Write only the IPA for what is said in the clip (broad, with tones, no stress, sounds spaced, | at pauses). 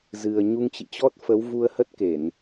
z ɨ˨˩ ə̯ ɲ u˧ ŋ t͡ɕ ḭ˧˨ t͡ɕ ɔ˦˥ t̚ f ə˨˦ w v u˧ ə̯ h ə˦˥ t̚ k e˧˩˨ n